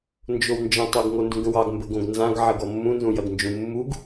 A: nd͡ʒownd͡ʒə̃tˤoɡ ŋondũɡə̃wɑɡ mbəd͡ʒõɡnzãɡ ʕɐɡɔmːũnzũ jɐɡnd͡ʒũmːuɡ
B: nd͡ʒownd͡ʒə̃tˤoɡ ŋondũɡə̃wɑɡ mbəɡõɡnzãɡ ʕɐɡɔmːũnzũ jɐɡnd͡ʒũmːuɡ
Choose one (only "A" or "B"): B